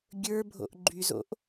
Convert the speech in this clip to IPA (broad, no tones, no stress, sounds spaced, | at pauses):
ɡʲ ə˞ bʱ o̰ ʔ ɡ͡ǃ y z o̰ ʔ